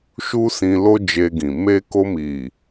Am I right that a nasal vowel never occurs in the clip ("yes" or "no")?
no